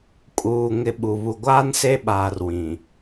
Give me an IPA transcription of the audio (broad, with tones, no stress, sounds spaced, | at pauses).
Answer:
kʼ uː˨ ŋ ɪ˨ ɓ u˨ β u˨ ɡʷ aː˦ n s e˦˨ ɓ aː˨ r w ĩ˨